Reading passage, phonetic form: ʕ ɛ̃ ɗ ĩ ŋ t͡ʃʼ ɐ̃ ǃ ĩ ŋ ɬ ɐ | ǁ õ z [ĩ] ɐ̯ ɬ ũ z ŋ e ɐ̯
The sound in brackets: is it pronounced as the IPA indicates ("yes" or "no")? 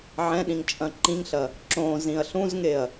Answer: yes